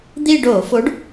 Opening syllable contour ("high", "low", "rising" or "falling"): falling